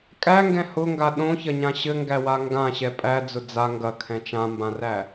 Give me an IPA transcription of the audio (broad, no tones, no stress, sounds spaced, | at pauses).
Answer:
kʼ æ ŋ ɡ ɛ̃ h ʊ ŋ ɡ a ɗ õ ç ɐ ɲ ã ɕ ɘ ŋ ɡ æ w a ŋ ɡ ã ɕ ɛ pʼ æ d͡z ʊ d͡z a ŋ ɡ ɐ kʰ ɛ̃ t͡ʃ ã m b ã r æ